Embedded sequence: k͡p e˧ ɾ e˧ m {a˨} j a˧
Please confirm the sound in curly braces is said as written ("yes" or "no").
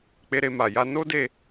yes